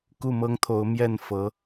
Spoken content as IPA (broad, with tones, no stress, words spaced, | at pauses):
ku˥˩mɤ˥ŋt̪ʰo˧˥ʊ̯ mjɛ˥˩nfɤ˧˥